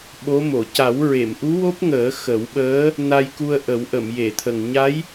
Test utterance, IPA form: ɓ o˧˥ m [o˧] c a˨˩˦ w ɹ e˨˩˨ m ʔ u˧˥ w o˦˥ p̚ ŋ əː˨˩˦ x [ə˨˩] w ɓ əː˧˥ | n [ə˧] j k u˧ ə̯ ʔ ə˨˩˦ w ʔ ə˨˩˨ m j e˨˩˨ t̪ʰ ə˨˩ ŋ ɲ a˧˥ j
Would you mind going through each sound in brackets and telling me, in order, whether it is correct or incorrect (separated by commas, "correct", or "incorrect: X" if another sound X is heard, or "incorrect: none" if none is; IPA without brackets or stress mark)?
incorrect: o˨˩˨, incorrect: ə˨˩˦, incorrect: a˧